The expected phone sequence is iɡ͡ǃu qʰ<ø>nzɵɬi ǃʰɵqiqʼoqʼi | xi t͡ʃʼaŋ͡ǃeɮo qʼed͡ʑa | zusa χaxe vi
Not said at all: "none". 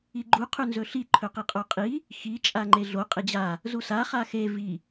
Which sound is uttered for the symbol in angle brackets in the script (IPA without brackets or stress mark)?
ʉ